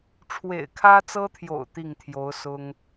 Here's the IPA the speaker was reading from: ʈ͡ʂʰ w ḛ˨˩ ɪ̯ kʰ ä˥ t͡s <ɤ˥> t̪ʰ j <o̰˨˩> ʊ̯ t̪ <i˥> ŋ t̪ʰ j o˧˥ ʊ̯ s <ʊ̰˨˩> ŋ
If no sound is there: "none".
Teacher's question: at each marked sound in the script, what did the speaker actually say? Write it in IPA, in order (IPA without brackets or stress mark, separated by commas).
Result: ɤ˥, o̰˨˩, i˥˩, ʊ˥